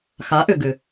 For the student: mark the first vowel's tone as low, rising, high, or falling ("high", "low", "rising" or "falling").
rising